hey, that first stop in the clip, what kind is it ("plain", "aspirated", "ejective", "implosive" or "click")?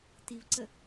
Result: plain